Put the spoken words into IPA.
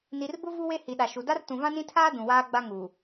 ni˨rbʊ˦ vu˦we˦hi˨ɗa˨ ʃu˨ da˦rtũ˨ vã˦nĩ˦tʰaː˦ dũ˨waː˦ɡ͡ba˦ŋuː˨

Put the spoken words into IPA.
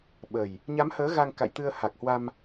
ɓə˨˩j | ɲa˨˦mhəː˨˦ ɣa˧ŋka̰˧˨jt̪ɨ˧ə̯ ha˨˩k̚hwa˧m

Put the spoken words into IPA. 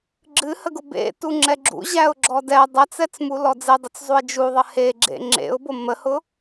ɡ͡ǁɨhəɡʊ bḛtu ŋ͡ǁɛɡ͡ǁṵ ʑæʊ̯ɡ͡ǁɔdɛ dˤɛt͡sɛt͡smu lɔd͡zedˤʊt͡szˤuɪ̯ d͡ʒuðˤə heɡ͡ǁḛ ŋ͡ǁḛʊ̯bo məhʊ

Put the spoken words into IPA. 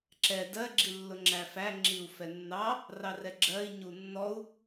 ǁɛ dɜ ɡ͡ǁilːʊŋ͡ǁæfæ ŋ͡ǁiu̯fɛnːɑ | rɑrɛɡ͡ǁɜi̯ ɲunːɔu̯

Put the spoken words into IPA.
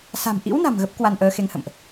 sa̤˨˩mʔḭ˧˥wna̤˨˩m ɣə˦˥p̚kwa˧nʔəː˨˦ xe˨˦ŋhə̰˧˨mʔ

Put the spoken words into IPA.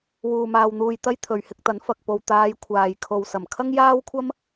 wuː˧maː˧wn̪uː˧jt̪ɐ˥j t̪ʰɵ˨ɥhɪ˧k̚t̪ɐ˨˥n fɐ˨k̚po˧w t̪aː˨˧j kʷʰaː˨j kʰo˨wsɐ˨˩m kʰɐ˥ŋjaː˥wkʷʰɐ˥m

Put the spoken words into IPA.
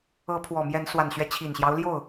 ɤ˨˦ pʰwɔ˨˩mjɛ˨˦n swa˨˩nɕɥɛ˦ t͡ɕʰi˨˩nɕjɑ˦ʊ̯ljo˥˨ʊ̯

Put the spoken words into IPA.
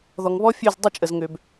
ðɔ˨ŋβɔ˦fʲø˦˨z dˤə˦˨t͡ʃʼə˨zŋø˨b

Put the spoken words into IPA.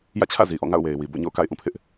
jä̰˦˨t͡ɕʰä̰˦˨zi˨ ʔɔ̰˦˨ ŋa̰˦˨ʊ̯we˨ɪ̯ wi˨ bo̰˦˨ɲo̰˦˨ʊ̯ka̰˦˨ɪ̯ ʔũ˦˨pʰɪ˦ʔ

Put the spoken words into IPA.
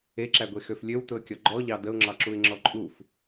eǁæɡʷexøf lʲøwtʊə̯kʲɔ ɡ͡ǃɔʎɑ dəʊ̯ŋ͡ǁɑǁuɪ̯ŋ͡ǁɔ ǃʼuf

